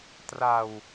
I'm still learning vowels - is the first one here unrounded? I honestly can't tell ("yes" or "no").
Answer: yes